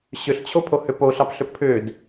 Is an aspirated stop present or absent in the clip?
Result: present